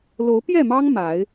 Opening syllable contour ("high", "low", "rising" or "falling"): rising